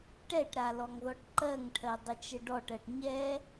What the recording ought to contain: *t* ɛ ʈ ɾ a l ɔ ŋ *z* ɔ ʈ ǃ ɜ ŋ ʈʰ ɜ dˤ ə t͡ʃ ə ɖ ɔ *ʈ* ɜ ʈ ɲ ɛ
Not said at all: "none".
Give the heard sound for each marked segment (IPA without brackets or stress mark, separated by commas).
ʈ, ð, ʈ